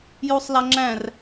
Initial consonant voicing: voiced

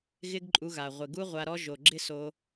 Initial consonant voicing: voiced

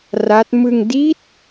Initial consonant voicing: voiced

